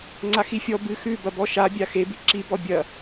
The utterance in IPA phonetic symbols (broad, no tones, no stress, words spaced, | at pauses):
ŋ͡ǀaxifʲɔ bɨ xʉ bɐbɔʃa bʲaxebi ǁibɔ bʲɐ